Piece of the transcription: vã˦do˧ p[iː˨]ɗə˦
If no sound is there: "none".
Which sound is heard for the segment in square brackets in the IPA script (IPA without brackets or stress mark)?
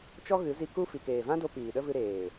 iː˨